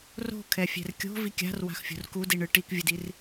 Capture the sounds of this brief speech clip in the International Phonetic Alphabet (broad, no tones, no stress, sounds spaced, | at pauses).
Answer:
r o̤ kʰ ɛ fʲ ɛ̤ r kʲ o̤ v i kʲ a̤ r w a̤ x fʲ o̤ r k u d i ɳ ɯ ʈ i k vʲ ɯ d i r